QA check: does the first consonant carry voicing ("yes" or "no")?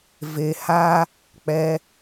yes